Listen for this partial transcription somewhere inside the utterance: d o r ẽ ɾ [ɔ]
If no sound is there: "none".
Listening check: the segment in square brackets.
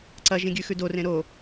o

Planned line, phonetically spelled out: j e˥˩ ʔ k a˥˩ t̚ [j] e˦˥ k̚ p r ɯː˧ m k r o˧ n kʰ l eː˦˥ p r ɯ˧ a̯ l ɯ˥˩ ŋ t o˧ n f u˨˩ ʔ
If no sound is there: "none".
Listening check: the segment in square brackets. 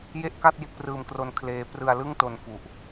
j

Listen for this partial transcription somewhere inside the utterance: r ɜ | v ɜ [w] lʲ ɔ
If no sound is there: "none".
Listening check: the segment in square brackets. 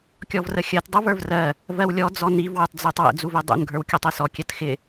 w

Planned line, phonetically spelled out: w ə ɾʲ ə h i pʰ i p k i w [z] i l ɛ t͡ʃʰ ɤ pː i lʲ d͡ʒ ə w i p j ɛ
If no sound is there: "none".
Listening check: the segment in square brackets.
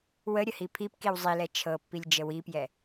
zˤ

